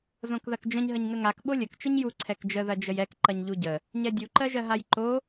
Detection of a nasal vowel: present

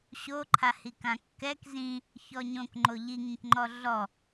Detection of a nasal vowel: present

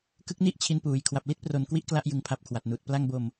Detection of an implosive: absent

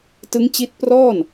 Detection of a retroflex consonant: absent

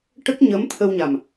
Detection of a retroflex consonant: present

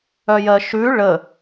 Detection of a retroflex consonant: present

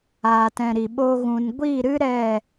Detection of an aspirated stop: absent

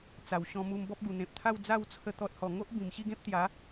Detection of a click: absent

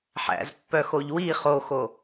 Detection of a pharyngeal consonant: present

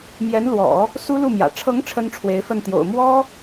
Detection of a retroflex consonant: present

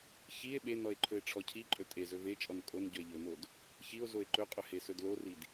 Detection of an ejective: present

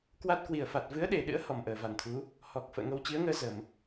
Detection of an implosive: present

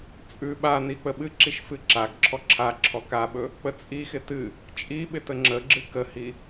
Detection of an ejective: present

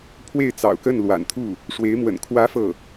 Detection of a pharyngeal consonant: absent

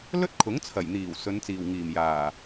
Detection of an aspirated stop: present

